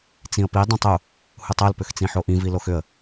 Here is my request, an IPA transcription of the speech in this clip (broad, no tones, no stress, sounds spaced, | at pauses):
t͡s ĩ ə̯ p i dˤ ĩ tˤ u | h u tˤ o l p ʏ x t͡s ĩ ħ o ʔ ĩ v i l o x ʏ ə̯